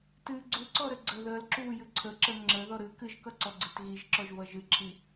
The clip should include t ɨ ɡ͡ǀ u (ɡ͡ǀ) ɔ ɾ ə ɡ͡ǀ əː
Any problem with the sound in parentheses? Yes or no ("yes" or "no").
yes